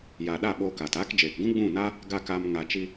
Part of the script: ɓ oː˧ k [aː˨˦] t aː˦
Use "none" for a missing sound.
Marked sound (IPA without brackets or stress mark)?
aː˨